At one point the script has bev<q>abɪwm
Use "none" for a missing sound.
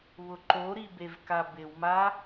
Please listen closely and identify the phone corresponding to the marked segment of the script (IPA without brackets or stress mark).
k